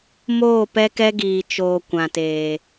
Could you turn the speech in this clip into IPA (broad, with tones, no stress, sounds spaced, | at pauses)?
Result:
m oː˦˨ p ɛ˦ k ɛ˦ ɡ iː˨ t͡ʃ oː˨ kʷ ã˨ t eː˨